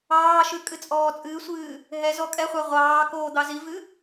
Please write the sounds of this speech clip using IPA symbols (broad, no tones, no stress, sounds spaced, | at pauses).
ɑː ʃ ʉ kʼ ɨ t͡sʼ ɔː t͡sʼ ɨː sʷ ɨː | ɦ ɛ z ɔ kʼ ɛ χʷ a ʁʷ ɑː k oː d̪ ɑ z i v ɨ